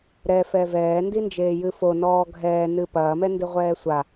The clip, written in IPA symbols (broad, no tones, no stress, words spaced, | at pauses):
ɾɛfɛ vɛːndind͡ʒeːjɨ fonɔː ɡʱɛːnɨ pɐːmɛndɨʁʷɛː sʷa